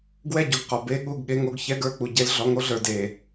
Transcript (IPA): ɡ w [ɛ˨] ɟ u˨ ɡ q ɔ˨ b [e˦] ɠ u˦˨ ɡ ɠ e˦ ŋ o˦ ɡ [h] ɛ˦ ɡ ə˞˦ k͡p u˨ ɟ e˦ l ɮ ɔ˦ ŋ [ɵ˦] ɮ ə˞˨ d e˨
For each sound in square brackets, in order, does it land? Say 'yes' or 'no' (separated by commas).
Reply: no, yes, no, no